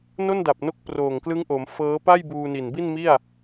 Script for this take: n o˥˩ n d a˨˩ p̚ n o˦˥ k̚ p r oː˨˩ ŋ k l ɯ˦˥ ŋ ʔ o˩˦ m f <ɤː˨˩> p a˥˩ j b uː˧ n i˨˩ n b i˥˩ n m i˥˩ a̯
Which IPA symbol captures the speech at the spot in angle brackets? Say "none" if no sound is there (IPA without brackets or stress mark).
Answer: ɤː˦˥